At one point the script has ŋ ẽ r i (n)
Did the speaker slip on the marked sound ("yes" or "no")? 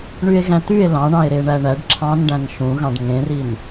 no